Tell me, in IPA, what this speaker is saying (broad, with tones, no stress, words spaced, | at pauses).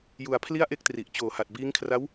ju˧a̯pʰli˥˩a̯ʔe˥˩k̚tri˨˩ʔ t͡ɕoː˨˩ha˨˩t̚biː˦˥ŋkʰra˦˥w